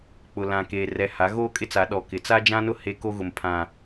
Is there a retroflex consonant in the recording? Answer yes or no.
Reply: no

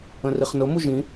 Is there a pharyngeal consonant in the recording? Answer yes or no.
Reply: no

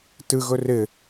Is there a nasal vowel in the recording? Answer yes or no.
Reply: no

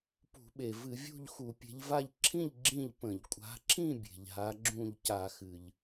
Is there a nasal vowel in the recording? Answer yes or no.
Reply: yes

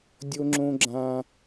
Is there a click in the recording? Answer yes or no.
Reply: yes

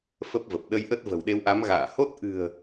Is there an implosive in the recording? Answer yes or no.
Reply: yes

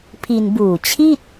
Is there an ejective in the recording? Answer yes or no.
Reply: no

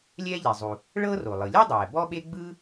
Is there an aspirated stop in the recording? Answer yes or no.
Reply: no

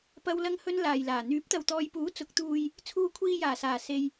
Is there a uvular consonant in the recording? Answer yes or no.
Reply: no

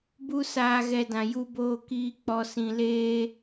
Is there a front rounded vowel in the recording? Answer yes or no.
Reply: no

